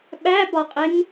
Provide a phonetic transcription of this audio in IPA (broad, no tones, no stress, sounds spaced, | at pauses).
ɓ æ b ɒ qʼ e ŋ